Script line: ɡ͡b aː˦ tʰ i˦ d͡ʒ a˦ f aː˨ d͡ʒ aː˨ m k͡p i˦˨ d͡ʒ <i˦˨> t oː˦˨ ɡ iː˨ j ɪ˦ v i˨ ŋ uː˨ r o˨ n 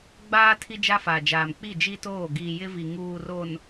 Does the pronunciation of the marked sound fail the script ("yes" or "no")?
yes